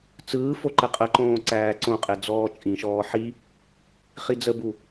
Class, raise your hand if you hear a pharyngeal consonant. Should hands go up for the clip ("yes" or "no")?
yes